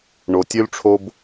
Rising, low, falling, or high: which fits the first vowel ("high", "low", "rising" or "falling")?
low